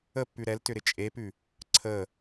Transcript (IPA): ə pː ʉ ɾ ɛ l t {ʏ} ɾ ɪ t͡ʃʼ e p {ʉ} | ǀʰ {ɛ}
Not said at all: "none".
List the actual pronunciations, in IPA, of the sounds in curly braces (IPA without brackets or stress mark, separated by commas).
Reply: ʏ, ʉ, ə